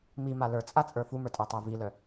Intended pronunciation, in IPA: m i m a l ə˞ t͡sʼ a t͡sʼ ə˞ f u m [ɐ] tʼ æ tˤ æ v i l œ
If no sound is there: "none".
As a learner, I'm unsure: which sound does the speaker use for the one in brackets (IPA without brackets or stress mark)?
ə˞